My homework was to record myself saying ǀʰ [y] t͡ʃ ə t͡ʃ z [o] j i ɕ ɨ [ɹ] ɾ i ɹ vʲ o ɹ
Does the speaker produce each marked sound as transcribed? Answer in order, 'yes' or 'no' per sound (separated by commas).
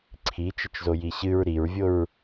no, yes, yes